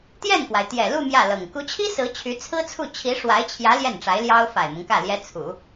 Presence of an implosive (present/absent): absent